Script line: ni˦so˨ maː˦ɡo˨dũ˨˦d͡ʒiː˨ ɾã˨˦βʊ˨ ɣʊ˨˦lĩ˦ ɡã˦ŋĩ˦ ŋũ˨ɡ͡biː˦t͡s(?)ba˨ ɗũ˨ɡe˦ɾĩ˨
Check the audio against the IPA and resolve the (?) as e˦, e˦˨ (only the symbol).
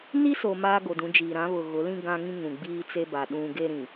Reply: e˦